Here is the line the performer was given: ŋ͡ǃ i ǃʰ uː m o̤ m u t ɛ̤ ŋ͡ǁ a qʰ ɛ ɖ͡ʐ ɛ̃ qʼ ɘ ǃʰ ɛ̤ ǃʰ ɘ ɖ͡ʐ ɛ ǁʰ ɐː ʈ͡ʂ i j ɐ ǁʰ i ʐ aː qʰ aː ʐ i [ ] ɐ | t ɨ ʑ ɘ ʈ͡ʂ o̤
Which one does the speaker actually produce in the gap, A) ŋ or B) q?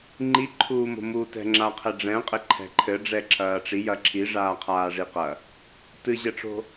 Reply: B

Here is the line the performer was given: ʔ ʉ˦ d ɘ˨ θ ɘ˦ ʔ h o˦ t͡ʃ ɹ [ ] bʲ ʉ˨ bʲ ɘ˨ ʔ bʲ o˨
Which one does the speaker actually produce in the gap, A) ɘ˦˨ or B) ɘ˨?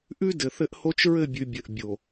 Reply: A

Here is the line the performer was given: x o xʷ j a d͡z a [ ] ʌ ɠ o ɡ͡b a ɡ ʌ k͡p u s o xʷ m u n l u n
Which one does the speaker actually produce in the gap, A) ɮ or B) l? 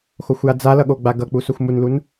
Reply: B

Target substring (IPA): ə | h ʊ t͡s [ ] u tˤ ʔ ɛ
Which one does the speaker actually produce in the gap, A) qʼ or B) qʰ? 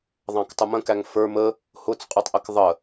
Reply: A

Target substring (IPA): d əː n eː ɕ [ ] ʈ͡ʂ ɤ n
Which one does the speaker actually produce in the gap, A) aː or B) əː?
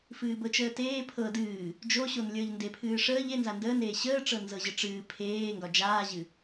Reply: B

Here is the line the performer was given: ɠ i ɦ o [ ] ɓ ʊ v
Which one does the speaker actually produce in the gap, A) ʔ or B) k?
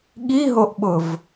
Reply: A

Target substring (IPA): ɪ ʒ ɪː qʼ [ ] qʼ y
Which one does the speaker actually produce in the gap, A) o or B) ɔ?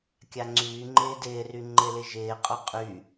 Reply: A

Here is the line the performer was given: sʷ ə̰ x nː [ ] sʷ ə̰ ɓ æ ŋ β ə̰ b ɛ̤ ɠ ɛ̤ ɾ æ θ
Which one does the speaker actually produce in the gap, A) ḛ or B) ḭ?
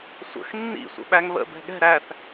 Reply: B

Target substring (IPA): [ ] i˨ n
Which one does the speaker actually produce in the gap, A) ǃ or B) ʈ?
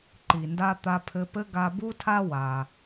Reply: A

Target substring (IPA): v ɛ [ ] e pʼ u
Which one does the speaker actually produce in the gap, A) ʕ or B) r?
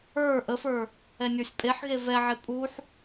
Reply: A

